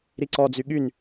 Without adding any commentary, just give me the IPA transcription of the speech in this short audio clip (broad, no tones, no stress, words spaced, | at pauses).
ɾiǀɔd͡zy ɠyn